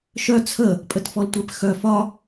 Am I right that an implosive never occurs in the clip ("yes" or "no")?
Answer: yes